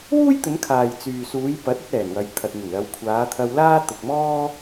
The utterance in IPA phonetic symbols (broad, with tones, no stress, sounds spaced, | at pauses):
w uː˥ j t̪ ɵ˨˧ n kʰ aː˨ j t͡s yː˨ s uː˨˧ j p ɐ˨˥ t̚ ɵ˨˥ t̚ ɛː˨˩ n w ɐ˨ j t̪ʰ ɐ˨ t̚ n̪ ɪ˨˩ ŋ l ɐ˨˧ w kʷʰ aː˨˧ t̪ʰ ɐ˧ w l aː˥ t̪ ʊ˨ k̚ m ɔː˥